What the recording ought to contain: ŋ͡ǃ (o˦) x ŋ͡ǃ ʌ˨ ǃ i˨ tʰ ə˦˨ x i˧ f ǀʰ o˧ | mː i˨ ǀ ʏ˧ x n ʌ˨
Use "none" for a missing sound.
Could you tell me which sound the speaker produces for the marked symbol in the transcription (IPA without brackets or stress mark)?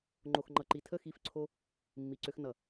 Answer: o˨